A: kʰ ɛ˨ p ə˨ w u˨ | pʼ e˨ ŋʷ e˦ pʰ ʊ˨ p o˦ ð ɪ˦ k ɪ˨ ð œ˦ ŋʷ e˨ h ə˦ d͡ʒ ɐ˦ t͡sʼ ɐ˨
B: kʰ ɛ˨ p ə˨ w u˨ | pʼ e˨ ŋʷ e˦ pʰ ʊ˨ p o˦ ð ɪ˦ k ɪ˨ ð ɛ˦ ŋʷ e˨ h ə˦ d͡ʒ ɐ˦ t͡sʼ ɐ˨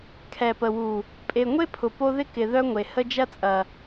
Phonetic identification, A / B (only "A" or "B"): A